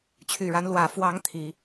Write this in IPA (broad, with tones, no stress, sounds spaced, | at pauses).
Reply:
t͡ɕʰ y˨˩ ɻ a˨˦ n l w ä˨˩ f w ɑ˨˦ ŋ t̪ʰ i˨˦